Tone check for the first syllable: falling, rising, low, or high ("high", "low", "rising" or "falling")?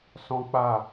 high